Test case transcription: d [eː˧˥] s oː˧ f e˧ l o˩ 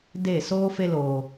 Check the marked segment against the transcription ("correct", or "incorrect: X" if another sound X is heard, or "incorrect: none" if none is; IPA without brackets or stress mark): incorrect: eː˧˩